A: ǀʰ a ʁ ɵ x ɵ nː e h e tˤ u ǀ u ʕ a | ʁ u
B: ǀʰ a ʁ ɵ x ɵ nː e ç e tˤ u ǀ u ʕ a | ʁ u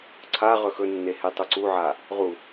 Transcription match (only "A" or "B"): A